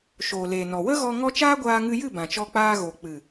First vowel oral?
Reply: yes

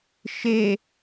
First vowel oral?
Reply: yes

